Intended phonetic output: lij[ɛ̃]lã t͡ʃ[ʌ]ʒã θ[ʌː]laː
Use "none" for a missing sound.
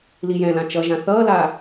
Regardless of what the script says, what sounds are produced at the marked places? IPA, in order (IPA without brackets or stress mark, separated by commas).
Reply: ɛ̃, ʌ, ʌː